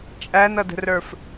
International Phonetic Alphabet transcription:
t͡ʃʼ æ n ʌ d ə̤ r ə˞ f

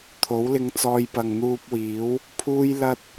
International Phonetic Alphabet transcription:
t̪ʰ o˨˥ w l ɪ˧ ŋ t͡s ɔː˧ j p ɐ˨ ŋ n̪ uː˧ p̚ w iː˨˥ w | pʰ uː˥ j l ɐ˥ t̚

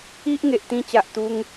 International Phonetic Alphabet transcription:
i˦ ʔ ŋ e˨ ʔ t̪ ĩ˧ t͡ɕ a˨ ʔ t̪ u˧ ŋ

